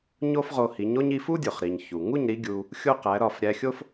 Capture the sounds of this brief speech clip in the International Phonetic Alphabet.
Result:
ɲ o˥ f ʁ o˧ h i˩˥ ɲ o˥ ɲ i˧ f u˥ dʲ o˩ χ ɾ i˩ ɲ ç u˩ ŋ u˥˩ ɲ ɾ i˧ ɡʲ u˧ | xʲ o˥ q æ˩˥ ɾ ɒ˥˩ f ɾʲ æ˧ xʲ o˥ f

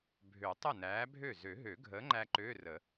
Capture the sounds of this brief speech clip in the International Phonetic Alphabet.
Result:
bʱ ø˨˩˦ tˤ ə˥˩ n æː˨˥ bʱ ø˥˩ z ø˨˩˦ ɦ ø˨˩˦ ɡʱ əː˨˥ ŋ͡ǃ æ˧ ǃ øː˧˥˧ r ə˨˩˦

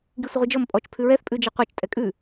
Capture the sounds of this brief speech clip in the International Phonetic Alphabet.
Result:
ɡ i sʷ ə ʁʷ i d͡ʒ ɔ m pʼ ɔ t͡ʃ pʰ ʉ ɹ ɛ θ pʼ ʉ d͡ʒ e qʷ a t͡ʃ tʼ ɛ kʼ ʉ

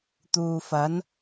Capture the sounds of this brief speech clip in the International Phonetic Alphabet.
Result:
t̪ uː˨ f ɐ˨˥ n

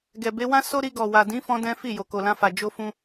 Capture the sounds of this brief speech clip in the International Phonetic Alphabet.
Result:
ɡ ɛ˨ b e˨˦ w ã˦ s o˦ ɾ i˧ ɡ ɔ˨ w a˨ d ĩ˨˦ f ɔ̃˧ d ɛ̃˦ f i˦˨ j o˨ k o˨ l ã˧ f a˨ d͡ʒ o˧ f ũ˧

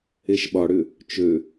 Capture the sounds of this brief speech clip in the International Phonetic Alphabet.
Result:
e ʃ ɓ ɒ ɽ ʏ | t͡ʃ ø

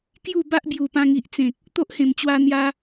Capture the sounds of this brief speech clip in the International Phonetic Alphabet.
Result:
k j u˥˧ b a˦ ʔ b j u˨˩ p ã˧ ŋ i˨ ʔ t͡s ẽ˨ k̚ | t̪ o˦ ʔ h ẽ˨˩ m t͡ɕ w a˧ n̪ j a˧

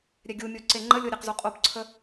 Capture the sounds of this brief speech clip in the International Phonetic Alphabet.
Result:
ɾʲ ɛ ɡʲ u mʲ o ǀ e ŋ͡ǃ ə lʲ o ɾʲ e q z u qʼ o p ǀʰ ə

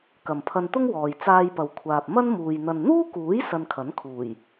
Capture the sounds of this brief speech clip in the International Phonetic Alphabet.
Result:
k ɐ˨ m pʰ ɐ˧ n t̪ ʊ˥ ŋ w ɔː˨ j t͡s aː˧ j p ɐ˨ w kʷʰ aː˨ p̚ m ɐ˥ n m uː˨ j n̪ ɐ˨ n n̪ uː˥ k uː˨˥ j s ɐ˧ n kʰ ɐ˨˥ n kʰ uː˨˩ j

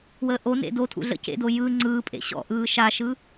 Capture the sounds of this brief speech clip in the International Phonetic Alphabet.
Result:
w əː ʔ o n ḛ d o tʰ ṵ ɮ ə̰ c ḛ d o j ɯ ŋ͡ǀ ɯː pʼ ḛ ɕ ɔ̰ ʔ ɯː ʃ a ʃ ɯ

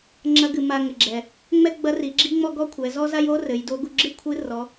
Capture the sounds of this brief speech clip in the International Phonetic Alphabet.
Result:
ŋ͡ǁ ɐ˧˥ ɡ ɨ˩˧ m a˧ ŋ ɘ˩ ɡ͡ǁ ɛ˩ | ŋ͡m ɛ˥ ɡ͡b ɐ˧˥ r i˩˧ ɡ͡ǁ i˥ ŋ͡m ɔ˥ ɡ ɔ˥ kʷʰ ɛ˩˧ z ɔ˥ z a˥ j o˥ r ɘ˩˧ j d o˧˥ ɡ u˧ ɡ͡ǁ ɨ˥ kʷʰ ɨ˧˥ r ɔ˩˧

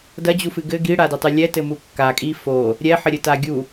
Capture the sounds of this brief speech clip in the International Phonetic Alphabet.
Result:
d ɐ d͡ʑ u f ɨ ɡ ɘ ɡ i ɽ a d ɘ tˤ ɨ lʲ ɛ t ɘ m u kː a kʼ i f o | ɾʲ ɛ ħ ɘ ɾʲ ɘ t a ɡʲ u

